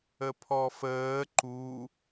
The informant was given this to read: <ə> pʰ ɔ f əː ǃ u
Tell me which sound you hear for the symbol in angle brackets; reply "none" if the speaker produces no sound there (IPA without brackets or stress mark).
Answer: ə